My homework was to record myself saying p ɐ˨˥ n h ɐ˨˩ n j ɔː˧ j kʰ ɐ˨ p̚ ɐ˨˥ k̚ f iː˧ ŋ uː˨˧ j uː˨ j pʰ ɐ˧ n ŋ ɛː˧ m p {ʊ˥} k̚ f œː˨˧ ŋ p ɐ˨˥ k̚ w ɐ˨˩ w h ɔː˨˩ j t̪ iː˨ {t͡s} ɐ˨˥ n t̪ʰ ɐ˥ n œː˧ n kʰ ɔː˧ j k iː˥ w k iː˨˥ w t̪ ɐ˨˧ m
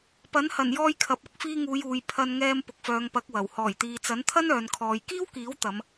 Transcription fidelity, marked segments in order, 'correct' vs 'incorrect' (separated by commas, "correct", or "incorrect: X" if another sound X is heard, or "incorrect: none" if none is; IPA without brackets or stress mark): incorrect: ʊ˨, correct